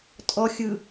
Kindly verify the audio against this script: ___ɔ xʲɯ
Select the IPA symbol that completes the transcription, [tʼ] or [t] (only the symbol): tʼ